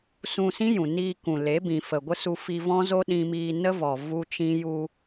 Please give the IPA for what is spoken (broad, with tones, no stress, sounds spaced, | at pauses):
s ũ˧ s ĩ˦ j ũ˨ n iː˧ k ũ˨ l e˨˦ b ĩ˨ f ə˨ ɡʷ ə˦ s u˧ f i˧ v ɔ̃˦ z o˦ ɗ ĩ˧ m iː˧ n ə˦ v ɔ˨ v u˦ t͡ʃ ĩ˦ j u˧